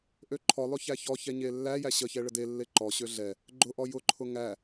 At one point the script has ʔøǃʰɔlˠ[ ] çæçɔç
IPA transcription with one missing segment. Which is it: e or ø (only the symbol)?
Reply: ø